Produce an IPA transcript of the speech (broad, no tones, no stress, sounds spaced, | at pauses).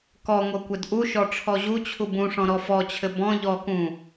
k ɔ ŋʷ ʌ kʷ ɘ d ʔ u ʃ ɔ ʈ͡ʂʰ ɔ ʑ u t͡ɕʰ u b ũ ʂ ɔ̃ ɾ ɔ f ɔ t͡ɕʰ ɘ b ɔ̃ ʎ ɔ k ũ